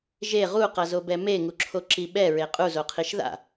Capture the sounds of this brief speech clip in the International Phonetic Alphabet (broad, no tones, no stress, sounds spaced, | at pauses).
ʒ e ʁ u q ʌ z o b ɛ m e ŋ u ǁʰ o ǁ i ɓ ɛ ɹ e qʼ u z o qʰ i ʃ ð a̰